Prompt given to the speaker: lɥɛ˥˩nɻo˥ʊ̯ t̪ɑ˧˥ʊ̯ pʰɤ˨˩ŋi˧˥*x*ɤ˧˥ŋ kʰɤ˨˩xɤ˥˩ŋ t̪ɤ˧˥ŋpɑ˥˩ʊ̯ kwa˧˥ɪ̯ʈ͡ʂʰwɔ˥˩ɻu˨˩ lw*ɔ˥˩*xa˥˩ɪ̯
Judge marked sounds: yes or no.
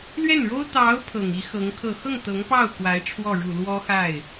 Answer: yes, no

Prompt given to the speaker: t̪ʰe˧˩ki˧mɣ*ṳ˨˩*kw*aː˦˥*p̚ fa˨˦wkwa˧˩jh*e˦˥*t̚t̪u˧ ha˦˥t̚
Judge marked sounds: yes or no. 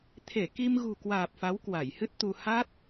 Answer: yes, no, no

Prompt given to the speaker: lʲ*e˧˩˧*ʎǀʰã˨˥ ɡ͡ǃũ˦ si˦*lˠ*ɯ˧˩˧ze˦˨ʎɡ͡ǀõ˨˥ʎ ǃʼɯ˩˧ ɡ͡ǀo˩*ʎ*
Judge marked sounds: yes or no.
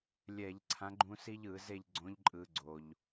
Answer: no, no, yes

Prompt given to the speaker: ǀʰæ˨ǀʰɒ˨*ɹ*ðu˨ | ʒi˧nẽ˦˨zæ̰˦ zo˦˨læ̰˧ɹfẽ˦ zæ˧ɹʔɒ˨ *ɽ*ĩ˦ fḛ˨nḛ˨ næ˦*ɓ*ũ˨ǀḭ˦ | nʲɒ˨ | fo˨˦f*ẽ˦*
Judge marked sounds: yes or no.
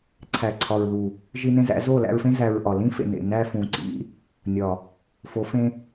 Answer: yes, no, no, yes

